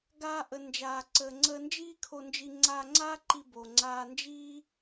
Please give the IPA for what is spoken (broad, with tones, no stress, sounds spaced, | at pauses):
ɡ aː˧ ʔ ə˩ n d͡ʒ aː˩ ǀ əː˩ ŋ͡ǀ əː˧ n d͡ʒ iː˥ kʰ o˧ n d͡ʒ i˧ ŋ͡ǀ aː˧ ŋ͡ǀ aː˥ ǃ i˧ b o˩ ŋ͡ǀ aː˧ n d͡ʒ iː˥